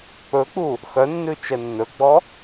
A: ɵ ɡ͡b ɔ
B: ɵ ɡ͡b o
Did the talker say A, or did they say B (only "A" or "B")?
A